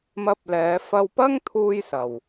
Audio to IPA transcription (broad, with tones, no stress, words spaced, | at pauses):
mɐ˧p̚lɛː˨˧ fɐ˧wpɐ˥ŋ t̪ʰuː˥jsɐ˨w